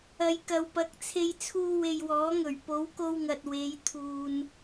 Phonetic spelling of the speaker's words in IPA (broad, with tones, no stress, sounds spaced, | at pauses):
ɐ˨ j k ɐ˨ w p ɐ˨˥ k̚ t͡sʰ e˧ j t͡sʰ uː˧ w e˨ j w ɔː˨˥ ŋ ɵ˨˩ ɥ p o˨˧ w k o˧ w ŋ ɐ˨ t̚ w e˨˧ j t̪ʰ uː˨ n